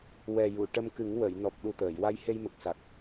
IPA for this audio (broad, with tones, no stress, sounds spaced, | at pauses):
w ɛ˨˩ j u˨˩˨ ʈ ə˧ m k ɨ˨˩˦ ŋ w ə˨˩˨ j n ɔ˨˩ p̚ ɗ u˨˩ t̪ əː˨˩˨ j w a˧ j h e˧ j m ə˨˩ k̚ s a˨˩ k̚